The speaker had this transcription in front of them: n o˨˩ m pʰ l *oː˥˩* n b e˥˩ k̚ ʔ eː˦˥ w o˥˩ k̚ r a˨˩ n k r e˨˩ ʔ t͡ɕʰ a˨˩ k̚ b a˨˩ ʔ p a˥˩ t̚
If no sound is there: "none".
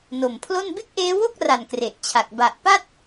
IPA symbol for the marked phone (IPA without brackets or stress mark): o˥˩